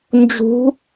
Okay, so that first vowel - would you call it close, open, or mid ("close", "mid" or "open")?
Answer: close